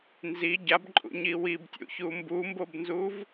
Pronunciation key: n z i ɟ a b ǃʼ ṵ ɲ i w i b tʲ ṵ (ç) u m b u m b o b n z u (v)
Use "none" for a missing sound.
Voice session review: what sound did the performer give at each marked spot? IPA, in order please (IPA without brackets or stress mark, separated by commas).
ç, v